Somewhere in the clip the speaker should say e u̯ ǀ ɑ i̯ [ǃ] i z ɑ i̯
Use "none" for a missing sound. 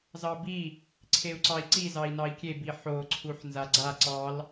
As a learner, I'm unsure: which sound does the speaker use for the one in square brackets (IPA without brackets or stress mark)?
ǀ